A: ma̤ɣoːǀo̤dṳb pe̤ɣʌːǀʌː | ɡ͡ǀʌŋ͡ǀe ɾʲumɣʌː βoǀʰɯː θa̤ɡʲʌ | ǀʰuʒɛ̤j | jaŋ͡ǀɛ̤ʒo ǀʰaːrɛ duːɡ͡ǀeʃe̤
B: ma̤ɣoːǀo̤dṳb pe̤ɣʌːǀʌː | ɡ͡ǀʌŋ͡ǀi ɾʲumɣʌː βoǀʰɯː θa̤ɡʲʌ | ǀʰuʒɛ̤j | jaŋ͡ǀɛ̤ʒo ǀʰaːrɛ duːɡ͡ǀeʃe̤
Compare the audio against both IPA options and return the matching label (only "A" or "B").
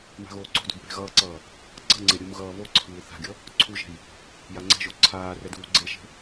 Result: A